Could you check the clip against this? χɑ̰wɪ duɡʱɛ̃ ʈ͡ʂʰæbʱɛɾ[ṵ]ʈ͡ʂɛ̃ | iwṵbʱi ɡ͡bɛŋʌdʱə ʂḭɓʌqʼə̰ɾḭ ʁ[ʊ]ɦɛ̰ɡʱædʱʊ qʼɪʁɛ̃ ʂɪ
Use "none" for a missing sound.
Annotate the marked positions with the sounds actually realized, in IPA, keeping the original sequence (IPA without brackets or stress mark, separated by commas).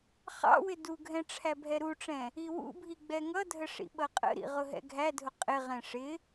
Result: u, ʊ